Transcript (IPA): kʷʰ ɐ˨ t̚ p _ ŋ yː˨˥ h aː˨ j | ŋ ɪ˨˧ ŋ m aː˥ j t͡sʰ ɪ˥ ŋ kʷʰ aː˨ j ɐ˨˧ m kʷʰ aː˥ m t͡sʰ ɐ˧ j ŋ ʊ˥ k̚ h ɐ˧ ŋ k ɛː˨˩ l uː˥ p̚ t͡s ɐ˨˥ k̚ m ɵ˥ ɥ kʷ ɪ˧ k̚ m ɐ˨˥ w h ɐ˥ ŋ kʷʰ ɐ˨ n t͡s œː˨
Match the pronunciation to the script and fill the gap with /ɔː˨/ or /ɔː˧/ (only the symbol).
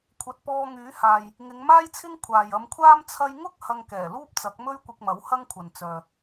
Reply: ɔː˧